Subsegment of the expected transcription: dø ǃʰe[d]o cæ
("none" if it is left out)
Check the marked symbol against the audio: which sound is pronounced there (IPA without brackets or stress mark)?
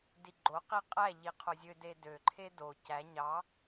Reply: d